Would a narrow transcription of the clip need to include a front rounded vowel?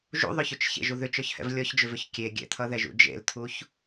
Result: yes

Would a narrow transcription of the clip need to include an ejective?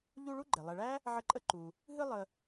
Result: yes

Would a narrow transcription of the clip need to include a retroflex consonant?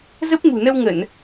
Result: no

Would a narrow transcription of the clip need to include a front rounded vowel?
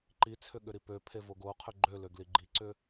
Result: yes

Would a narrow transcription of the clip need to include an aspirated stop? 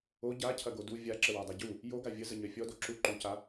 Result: yes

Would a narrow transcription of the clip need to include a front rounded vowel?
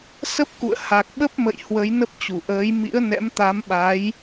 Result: no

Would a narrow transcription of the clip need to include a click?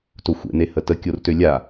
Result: no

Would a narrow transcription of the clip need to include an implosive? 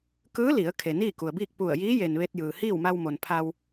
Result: no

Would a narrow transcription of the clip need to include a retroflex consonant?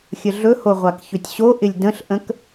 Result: no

